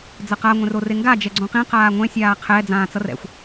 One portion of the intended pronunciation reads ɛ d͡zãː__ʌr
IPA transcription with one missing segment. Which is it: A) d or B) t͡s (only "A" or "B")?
B